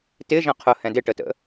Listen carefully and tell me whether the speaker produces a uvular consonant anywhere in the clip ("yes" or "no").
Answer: yes